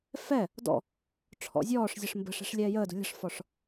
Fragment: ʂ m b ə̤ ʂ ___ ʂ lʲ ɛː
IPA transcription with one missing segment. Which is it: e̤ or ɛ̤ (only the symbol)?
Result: ɛ̤